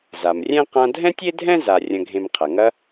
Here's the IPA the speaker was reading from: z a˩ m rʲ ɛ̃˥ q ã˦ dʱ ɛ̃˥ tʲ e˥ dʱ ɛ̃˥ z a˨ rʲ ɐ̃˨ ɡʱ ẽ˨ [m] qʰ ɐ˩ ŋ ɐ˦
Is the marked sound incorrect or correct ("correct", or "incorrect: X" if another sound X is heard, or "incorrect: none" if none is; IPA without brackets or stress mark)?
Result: correct